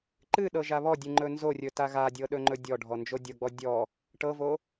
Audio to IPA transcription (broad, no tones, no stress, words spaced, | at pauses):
ǃɨɗɤ ʒaβɔdʲɨ ŋ͡ǃɵnzorʲɵ taɣadʲɤ ɗɵŋ͡ǃɵdʲɔɖʱɔ nd͡ʒodʲɤɡ͡bɔ dʲɔ | ʈɤvo